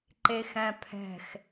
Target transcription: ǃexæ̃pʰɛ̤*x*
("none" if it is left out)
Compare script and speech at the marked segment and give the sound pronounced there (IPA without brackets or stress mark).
x